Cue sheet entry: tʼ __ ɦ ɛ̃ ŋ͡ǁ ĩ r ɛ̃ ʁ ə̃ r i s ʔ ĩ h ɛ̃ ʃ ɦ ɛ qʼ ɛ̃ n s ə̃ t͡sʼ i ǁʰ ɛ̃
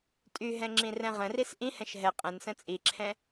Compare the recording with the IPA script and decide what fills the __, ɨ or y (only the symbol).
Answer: y